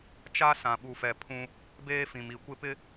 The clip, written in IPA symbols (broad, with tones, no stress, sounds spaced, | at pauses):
t͡ʃ a˦ s ã˨ ɓ u˨ f ɛ˨ pʰ ũ˦ | b eː˦ f ĩ˨ m i˨ kʷ ɪ˦ p ɪ˦